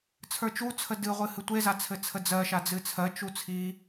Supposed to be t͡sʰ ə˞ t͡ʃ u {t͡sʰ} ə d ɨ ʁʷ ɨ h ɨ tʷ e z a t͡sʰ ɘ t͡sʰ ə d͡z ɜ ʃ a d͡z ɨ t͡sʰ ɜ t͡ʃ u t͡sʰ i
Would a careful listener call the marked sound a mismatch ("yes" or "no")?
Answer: no